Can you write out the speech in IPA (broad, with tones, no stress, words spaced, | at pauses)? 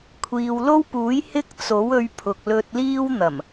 kʷʰiː˨wlo˥wpuː˨˥j hɪ˥k̚t͡so˨˥wɵ˧ɥ pʰʊ˨k̚lɵ˧t̚liː˥w n̪ɐ˨˩m